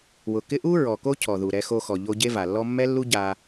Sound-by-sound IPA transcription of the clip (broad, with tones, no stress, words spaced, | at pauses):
wʊ˩kɪ˥ ʔu˥ ɹɔ˩ko˥ cʰɔ˩ðu˩ ɾɛ˧xo˧xɔ˩ ʎo˧ ɟe˥va˩lːɔ˥ mːɛ˥lːu˥ ɟa˧